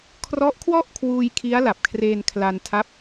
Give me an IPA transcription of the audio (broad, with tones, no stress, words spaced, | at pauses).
kʰrɔ˦˥ʔkʰwɔ˥˩ʔkʰwuː˧j kʰi˦˥a̯la˨˩p̚kʰreː˧nkʰla˧n tʰa˦˥p̚